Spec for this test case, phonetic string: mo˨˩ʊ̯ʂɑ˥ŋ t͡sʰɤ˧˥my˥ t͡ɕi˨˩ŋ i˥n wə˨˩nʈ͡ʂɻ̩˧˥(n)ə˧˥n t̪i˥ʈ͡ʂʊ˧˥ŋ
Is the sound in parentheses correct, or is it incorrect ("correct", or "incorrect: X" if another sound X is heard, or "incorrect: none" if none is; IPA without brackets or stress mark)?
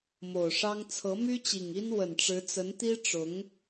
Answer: incorrect: t͡s